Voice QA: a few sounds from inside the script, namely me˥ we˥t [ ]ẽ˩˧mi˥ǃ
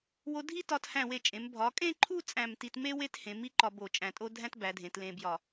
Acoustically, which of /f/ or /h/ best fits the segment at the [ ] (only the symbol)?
h